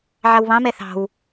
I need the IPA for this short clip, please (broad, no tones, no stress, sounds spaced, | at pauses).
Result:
ʕ ɑ w β ɑ̃ m ɛ θ ɑ̤ w